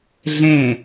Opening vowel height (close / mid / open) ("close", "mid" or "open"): mid